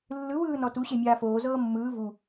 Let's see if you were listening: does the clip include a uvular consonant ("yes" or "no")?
no